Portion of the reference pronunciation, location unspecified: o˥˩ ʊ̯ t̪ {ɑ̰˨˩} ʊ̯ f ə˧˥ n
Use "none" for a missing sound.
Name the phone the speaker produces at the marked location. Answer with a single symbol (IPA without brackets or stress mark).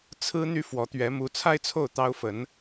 ɑ˥